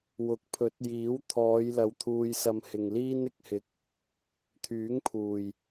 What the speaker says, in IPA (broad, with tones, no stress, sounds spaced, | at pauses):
w ʊ˨˥ k̚ pʰ ɵ˨˥ t̚ j iː˨˥ w t̪ʰ ɔː˨˧ j l ɐ˨˧ w t̪ʰ uː˧ j s ɐ˧ m h ɪ˨ ŋ l iː˥ n ɪ˧ k̚ h ɪ˨˥ k̚ | t̪ʰ yː˨˥ ŋ pʰ uː˨˩ j